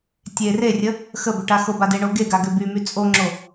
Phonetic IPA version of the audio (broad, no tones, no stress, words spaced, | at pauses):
tʲe rerʲə | xəbø ʈaxoba deɳoɡeɡa ɡøbymy t͡sʼoŋ͡ǁo